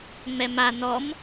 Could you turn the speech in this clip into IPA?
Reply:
ŋ͡mɛma nɔm

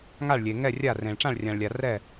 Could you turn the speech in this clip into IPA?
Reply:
ŋa˦˨ɭlʲe˨ ŋɛ˦˨rʲa˦˨rẽ˨ɭ ʈ͡ʂã˦˨ɭrʲã˨ɭlʲa˨ rɛ˦˨

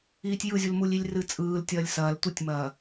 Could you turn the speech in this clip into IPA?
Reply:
iːtʲjɯzʲulmulʲ ilʲrɨt͡sʼɯːl tʲɐːlʲsɐːl tʷɨtʲmɐː

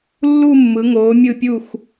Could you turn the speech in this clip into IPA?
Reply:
lːu˥˧ mːɯ˩˧ŋoː˩˧mʲɯ˧˩pʲu˧˩x

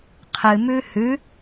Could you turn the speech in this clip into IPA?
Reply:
qʰɨmʉ hʉ

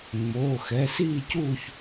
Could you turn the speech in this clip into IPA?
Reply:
ŋ͡moː˩˧˩xɛ˩˧˩siː˥˨cuː˥˨ç

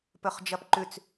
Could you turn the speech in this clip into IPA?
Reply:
pɵχd͡ʒɐpǃʉt͡s

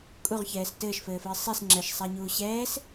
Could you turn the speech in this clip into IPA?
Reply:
kʼuʁçɛːs tɘːʃfɘːfɘː sˤis ŋ͡ǁɘʃsˤaɲuː ɕɛːs

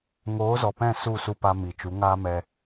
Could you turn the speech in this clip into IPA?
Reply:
ŋoː˨˦zɔ˨pɛ̃˦˨ su˦˨su˧pa˧ mi˨t͡ʃu˨˦ ŋa˦mɛ˧

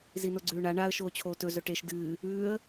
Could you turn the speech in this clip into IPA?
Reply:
zinoɡ͡ǀʉːɳa ɳaə̯ ʃoːt͡ɕʰoːtɵ zɵʈeʃ dɨː | ʉːə̯

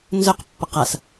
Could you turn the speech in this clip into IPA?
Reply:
nzœqpːʌq as

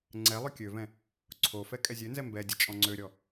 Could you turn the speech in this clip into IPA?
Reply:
ŋ͡ǀɛ lˠʏkʲøvɛ̃ | ǀʰofɛ kʼɛzʲønzɛ mbɛdʲə t͡ʃʼɔ̃ŋ͡ǀøɾʲɔ

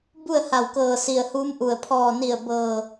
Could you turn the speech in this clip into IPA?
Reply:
bu˥˨ə̯ha˧˩wkɤː˧˩ si˧˩ə̯huː˧˥mʔu˩ə̯ pʰɔː˧˩ni˧˩ə̯ bɤː˧˩

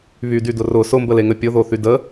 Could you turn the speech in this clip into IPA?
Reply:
βydydʊ rʊ sʊmbəleŋə pʲʊðoθy də

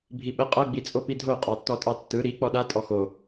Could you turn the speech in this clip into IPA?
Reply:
bʱiɓə qʼʌ ɡ͡bit͡sʼopidʱo qʼɑtːɔtʼɑtːɯ ɾi k͡pɔɗa tʼɔxo

